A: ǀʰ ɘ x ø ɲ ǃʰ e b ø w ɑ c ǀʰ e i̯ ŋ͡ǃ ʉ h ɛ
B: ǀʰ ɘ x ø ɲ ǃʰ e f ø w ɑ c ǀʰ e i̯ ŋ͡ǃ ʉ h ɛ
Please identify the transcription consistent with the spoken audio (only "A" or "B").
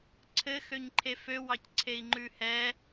B